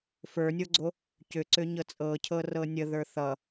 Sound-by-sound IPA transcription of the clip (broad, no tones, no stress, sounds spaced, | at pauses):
f ə˞ nʲ o ɡ͡ǀ o | c ʏ ǀ ʏ ɲ ɤ t͡sʼ ɤ cʰ ɤ r ɤ nʲ ə ð ə˞ θ ʌ